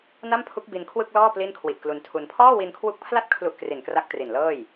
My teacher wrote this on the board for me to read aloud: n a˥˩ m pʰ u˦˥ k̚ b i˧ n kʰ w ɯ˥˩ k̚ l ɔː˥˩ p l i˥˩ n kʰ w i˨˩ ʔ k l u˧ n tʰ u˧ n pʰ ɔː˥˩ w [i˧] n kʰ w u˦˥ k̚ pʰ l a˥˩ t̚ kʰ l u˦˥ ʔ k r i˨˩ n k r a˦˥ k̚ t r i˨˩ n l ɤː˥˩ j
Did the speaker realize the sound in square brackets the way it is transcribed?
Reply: yes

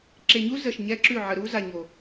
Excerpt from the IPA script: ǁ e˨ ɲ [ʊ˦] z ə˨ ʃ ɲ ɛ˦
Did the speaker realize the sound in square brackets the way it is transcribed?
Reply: no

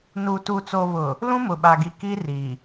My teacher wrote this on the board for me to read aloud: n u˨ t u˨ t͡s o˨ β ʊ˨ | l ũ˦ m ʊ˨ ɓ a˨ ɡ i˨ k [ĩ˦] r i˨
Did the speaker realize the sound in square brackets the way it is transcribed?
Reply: no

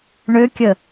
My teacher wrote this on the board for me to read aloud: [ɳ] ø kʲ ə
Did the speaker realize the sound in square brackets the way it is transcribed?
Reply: yes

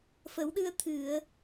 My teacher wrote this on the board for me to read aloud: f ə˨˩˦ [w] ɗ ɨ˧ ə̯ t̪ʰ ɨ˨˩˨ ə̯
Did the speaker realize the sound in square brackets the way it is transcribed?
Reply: yes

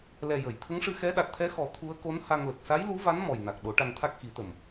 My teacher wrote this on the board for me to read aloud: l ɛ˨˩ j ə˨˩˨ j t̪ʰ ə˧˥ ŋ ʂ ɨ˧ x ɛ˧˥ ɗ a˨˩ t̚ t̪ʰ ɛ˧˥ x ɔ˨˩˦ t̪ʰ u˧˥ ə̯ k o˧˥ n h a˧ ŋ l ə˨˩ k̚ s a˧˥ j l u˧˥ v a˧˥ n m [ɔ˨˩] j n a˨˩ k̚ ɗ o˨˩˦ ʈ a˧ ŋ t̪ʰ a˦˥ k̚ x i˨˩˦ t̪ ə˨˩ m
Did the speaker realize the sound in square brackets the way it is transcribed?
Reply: yes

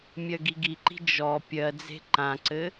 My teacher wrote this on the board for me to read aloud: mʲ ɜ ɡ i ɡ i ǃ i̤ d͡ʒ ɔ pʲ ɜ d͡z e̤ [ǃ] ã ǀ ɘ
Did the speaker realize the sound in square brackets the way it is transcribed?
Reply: yes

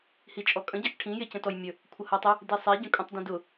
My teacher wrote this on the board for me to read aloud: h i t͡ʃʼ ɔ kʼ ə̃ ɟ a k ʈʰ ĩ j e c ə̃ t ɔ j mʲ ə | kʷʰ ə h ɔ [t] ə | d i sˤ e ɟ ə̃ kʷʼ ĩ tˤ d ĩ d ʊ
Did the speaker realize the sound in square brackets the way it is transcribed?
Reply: no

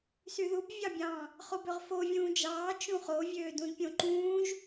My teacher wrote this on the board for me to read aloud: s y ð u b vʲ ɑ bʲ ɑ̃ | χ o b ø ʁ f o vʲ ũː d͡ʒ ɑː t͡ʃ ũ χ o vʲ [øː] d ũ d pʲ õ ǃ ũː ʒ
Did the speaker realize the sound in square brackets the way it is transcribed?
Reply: yes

